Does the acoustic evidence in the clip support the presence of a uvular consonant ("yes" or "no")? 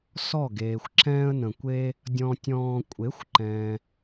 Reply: no